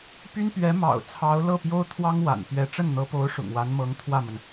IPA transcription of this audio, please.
p y˥ n p ɥ ɛ˧˥ m ɑ̰˨˩ ʊ̯ t͡sʰ ɑ˧˥ ʊ̯ l ɤ˥˩ p j o˥ ʊ̯ t̪ʰ w ɑ˥ ŋ w a̰˨˩ n p ɥ ɛ˧˥ ʈ͡ʂ ə˥˩ n n̪ ɤ˧˥ p o˧˥ ʊ̯ ʂ ʊ̰˨˩ ŋ w a˧˥ n m ɤ˧˥ ŋ t̪ʰ w ä˥˩ m ə˩ n

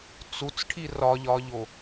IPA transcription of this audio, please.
t͡s u t͡s ʈʰ i r ɒ ʎ ɒ ʎ o

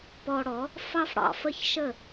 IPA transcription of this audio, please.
p ɔ˧ ɽ ɔ˩˥ | f ɑ˥ f ɽ ɑ̰˩ f ə˥ ç ʃ ə˥˩

